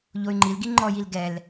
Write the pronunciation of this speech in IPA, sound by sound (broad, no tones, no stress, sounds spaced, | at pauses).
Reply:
ʎ o y̯ ŋ͡ǃ i l ɡ i ŋ͡ǃ ɔ j i l ɡ ɛ l